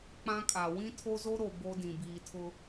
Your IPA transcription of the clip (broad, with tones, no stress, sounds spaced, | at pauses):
k͡p ã˦ kʼ a˨ w ĩ˦ tʰ o˦ z o˦ ɾ o˨ b o˦ d ĩ˨ b iː˨ tʰ ʊ˦